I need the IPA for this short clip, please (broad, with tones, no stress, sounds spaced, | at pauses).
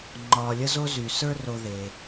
ŋ͡ǃ ɒː˨ lʲ ə˥ z o˥ z y˩ s ə˞˥ r o˨ ð e˩